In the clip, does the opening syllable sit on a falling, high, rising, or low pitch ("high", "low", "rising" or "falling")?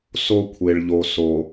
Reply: high